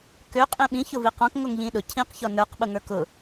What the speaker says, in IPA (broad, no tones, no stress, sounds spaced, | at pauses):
k ø qʼ ĩ ɓ ĩ ç ʊ v i q ɔ̃ k ŋ o ŋ ʎ ĩ ɗ ʊ cʰ ĩ q ç ɔ n ə˞ q ɓ ʊ ŋ ə˞ k ʊ